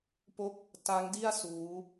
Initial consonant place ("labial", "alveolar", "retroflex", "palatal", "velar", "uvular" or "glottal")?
labial